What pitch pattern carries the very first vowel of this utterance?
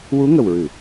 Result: rising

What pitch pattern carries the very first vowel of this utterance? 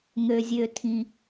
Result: low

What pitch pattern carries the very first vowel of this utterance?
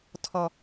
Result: high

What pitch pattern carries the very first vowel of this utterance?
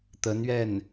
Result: rising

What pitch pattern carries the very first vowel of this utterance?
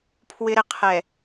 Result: high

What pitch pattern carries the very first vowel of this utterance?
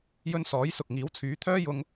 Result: high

